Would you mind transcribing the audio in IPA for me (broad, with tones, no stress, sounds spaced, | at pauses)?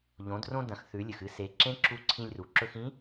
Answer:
ʎ õ˩˧ d r õ˧ d ɐ̃˩˧ x θ ʉ˩˧ lʲ ɨ˩ x ɨ˧ s e˩˧ ǁ ẽ˧˥ ǁ u˧˥ ǀʰ ĩ˧ lʲ r u˩ ǁ ɵ˧ x ĩ˧˥